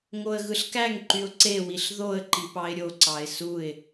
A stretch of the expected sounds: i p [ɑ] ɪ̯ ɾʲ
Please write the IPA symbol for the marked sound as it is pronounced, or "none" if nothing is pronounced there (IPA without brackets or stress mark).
ɑ